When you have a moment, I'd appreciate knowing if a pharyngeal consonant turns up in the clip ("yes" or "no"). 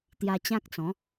no